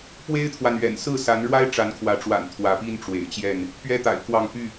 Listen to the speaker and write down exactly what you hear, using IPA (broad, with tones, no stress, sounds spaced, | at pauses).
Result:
p w e˦ ɪ̯ t̪ʰ w a˨ n ɥ ɛ̰˨˩ n s ɹ̩˥˨ s a˨˦ n ɻ w a˦ ɪ̯ ʈ͡ʂ a˨˦ n kʰ w ä˨˦ ʈ͡ʂ w a̰˨˩ n t̪ʰ w ä˨˦ p i˦ n ʈ͡ʂ w ḛ˨˩ ɪ̯ t͡ɕ j ɛ˥˨ n | p ɥ ɛ˦ t̪ a̰˨˩ ɪ̯ k w ɑ˥˨ ŋ p y˥˨